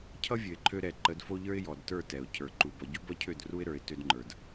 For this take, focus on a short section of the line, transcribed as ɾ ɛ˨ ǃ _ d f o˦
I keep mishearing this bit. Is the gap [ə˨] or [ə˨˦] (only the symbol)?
ə˨˦